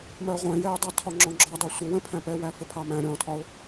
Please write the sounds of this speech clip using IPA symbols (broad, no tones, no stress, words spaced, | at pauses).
mɜʁʷɛ̃jɛʊ̯dˤɑ tʰɒŋ͡ǁɔ̃ɡ͡ǁɒdˤu sʷə wə̃pʰæ̃pɛwæ fɪpʰɑmæ̃ ɾʲɔ̃tʰɒʊ̯